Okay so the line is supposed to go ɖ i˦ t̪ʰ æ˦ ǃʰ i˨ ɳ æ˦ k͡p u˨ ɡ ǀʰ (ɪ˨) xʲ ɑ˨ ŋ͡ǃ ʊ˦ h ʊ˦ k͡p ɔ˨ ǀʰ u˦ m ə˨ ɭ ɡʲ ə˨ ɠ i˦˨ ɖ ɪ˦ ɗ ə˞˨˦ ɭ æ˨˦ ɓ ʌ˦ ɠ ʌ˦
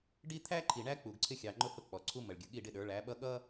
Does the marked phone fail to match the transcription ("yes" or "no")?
yes